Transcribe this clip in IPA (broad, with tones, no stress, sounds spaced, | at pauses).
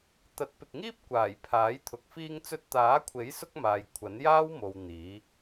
t̪ ɐ˨˥ t̚ p ɪ˨ k̚ ŋ iː˥ p̚ kʷ aː˨˩ j pʰ aː˨˥ j t̪ʰ ʊ˨ k̚ f iː˧ ŋ t͡s ɵ˧ t̚ t̪ aː˨˥ kʷʰ e˨˥ j s ʊ˥ k̚ m aː˨ j kʷʰ ɐ˨˥ n j aː˥ w m o˨ w n̪ iː˨˥